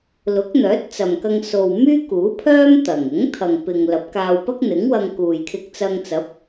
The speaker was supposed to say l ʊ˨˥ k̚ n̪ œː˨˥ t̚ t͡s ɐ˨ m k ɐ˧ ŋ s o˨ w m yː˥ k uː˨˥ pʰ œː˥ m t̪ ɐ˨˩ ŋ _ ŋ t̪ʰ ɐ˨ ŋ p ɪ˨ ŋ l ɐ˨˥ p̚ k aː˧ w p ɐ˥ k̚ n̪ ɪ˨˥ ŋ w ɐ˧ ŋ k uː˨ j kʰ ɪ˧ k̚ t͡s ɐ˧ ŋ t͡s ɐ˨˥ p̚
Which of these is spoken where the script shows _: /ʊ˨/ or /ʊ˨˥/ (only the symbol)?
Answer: ʊ˨˥